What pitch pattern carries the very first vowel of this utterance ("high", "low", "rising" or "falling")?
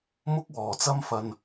high